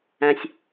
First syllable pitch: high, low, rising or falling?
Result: low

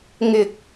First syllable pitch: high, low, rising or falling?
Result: low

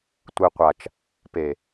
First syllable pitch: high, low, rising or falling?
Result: low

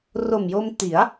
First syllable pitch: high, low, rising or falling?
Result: low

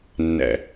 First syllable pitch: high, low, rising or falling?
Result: low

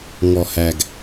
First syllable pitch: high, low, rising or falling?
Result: low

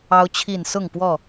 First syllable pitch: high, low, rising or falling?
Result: high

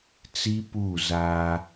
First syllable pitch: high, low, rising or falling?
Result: high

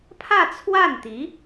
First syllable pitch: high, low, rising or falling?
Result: falling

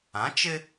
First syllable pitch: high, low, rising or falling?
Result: rising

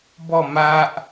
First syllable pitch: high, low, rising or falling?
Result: falling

